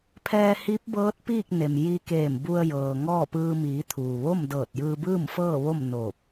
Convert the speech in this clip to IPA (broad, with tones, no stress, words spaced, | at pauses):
pʰɛː˧hi˧˥p̚bɤː˧˥t̚piː˥˨k̚ ne˩mji˧keː˧˩mbu˧ə̯ jɤː˩ŋɔː˥˨pɯː˧ miː˩˧t̪ʰuː˩ʋo˥˨m dɤː˧˩t̚jɯː˧bɯː˥˨mfɤː˥˨ ʋo˥˨m noː˧˩p̚